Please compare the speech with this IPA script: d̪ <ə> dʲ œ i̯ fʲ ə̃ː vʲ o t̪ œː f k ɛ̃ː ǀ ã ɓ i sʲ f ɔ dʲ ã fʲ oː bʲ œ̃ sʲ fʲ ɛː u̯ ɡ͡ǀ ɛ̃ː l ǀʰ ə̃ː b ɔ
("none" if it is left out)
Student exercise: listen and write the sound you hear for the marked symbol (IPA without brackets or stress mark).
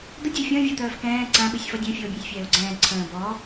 ə